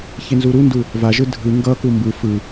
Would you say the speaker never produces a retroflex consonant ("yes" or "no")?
yes